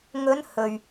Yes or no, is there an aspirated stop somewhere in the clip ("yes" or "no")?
no